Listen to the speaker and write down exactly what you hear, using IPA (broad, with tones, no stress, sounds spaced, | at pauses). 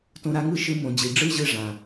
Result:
t õ˧ ɾ a˨˦ ŋ ɯ˦˨ ʃ ɯ˧ m õ˨ d͡ʑ i˨ ɖ͡ʐ ɯ˦ ʑ ɯ˧ ʐ ã˨